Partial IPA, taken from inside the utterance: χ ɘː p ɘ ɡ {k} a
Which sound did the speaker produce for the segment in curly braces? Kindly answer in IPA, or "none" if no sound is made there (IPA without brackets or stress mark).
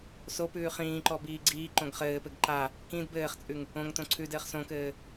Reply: ǃ